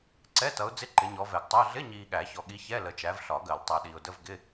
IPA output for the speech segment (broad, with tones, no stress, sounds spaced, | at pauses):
ǀ ɛ˧˥˧ t ʌ˨˦ ʊ̯ d͡z ɪ˧˥˧ ǃ ɪ˨˦ ɲ ɔ˨˦ v ɛ˨˩˦ ɡ tˤ ʊ˧˥˧ ə̯ ɮ ɪ˧˥˧ ɲ iː˨ ɠ æ˨˩˦ ç ɔ˨ ɠ i˨˦ ç ɛ˧˥˧ l ə˨˦ t͡ʃ æ˨˦ v ɬ ɒ˨˩˦ ɡ ɜ˨˩˦ l tˤ æ˨ ɗ iː˨ ʊ̯ d ə˧˥˧ v ɡ ɪ˧˥˧